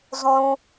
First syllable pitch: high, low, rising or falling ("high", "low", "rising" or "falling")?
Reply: high